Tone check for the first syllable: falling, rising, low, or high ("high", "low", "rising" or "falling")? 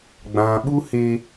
low